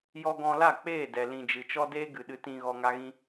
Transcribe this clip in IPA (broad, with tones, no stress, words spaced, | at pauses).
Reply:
jɔ˧ɡɔ̃˧la˦˨ k͡peː˦˨dɛ˨ lĩ˨d͡ʒɨ˨t͡ʃɔ˦ deː˦ɡɨ˨ɗɨ˧tĩ˧ ɣɔ˧ŋa˦ɣĩ˦